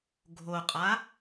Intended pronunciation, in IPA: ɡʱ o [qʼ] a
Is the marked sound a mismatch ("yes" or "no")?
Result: no